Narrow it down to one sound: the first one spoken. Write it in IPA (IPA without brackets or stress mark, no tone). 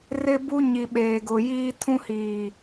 r